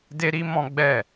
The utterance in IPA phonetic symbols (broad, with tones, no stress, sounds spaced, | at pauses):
d e˦ ɾ i˦ m ɔ̃˦ ɡ͡b ɛ˦˨